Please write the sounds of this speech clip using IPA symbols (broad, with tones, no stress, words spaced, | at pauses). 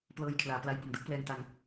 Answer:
plɤː˧jkʰlaː˩˦pla˧j bo˨˩m dɯ˦˥k̚plɛː˧ŋta˧ŋ